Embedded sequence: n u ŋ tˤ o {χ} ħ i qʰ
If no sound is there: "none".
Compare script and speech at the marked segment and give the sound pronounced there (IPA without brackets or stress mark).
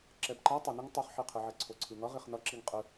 χ